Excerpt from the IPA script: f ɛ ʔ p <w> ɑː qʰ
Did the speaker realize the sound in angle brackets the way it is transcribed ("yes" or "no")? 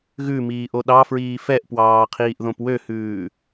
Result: yes